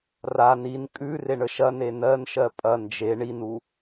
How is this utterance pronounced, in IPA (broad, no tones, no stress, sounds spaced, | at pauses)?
r a n i n kʼ ʉ r e ɳ ə ʃ ɐ n e n ɜ n ʃ ɜ pʼ ɐ n d͡ʒ e ɳ i n u